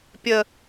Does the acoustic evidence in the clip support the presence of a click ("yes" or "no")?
no